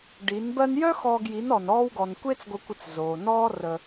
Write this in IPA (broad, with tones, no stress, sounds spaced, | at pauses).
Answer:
ɖ i˨˦ n b ɜ˧ n j œ˦ x ɔː˧ ɡ j i˨˦ n ɔ˨ n ɔː˦ w ɡ ɔ˧ n kʷ e˦ t͡s ɡʷ ə˧ kʷ ə˧ t͡s z oː˨ n ɔː˦ r ə˧